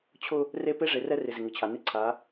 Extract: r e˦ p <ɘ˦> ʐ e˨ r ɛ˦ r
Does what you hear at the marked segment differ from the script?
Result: yes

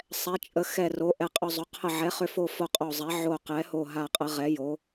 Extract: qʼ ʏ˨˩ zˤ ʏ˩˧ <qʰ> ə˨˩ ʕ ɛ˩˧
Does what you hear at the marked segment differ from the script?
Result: no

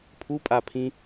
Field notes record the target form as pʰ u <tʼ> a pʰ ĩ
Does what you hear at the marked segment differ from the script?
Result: yes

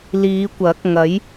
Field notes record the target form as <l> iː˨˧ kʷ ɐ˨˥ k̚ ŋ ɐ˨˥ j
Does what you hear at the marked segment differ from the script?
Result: no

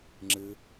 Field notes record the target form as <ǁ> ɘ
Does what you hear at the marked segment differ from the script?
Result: yes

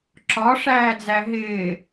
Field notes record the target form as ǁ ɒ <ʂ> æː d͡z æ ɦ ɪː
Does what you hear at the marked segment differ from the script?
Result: no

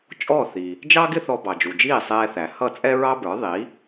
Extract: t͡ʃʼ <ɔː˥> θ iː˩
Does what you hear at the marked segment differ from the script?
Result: yes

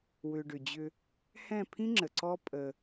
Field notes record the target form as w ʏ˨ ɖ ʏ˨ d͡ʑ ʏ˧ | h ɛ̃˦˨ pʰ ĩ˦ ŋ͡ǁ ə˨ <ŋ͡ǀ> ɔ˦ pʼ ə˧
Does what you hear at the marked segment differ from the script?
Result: yes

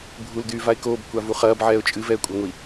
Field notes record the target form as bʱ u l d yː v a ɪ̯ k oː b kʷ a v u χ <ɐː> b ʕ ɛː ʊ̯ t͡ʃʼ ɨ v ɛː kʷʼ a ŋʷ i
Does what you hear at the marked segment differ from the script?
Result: no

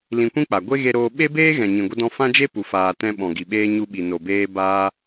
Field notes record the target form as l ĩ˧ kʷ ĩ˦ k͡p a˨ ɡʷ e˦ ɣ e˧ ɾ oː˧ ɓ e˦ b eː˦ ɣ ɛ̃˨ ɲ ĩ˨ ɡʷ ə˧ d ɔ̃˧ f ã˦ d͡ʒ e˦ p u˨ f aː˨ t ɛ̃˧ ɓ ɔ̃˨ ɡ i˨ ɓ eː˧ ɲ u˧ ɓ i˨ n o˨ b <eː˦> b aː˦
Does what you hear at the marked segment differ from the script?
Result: yes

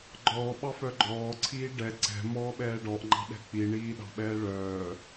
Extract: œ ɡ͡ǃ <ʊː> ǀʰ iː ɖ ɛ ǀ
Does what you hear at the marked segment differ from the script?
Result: yes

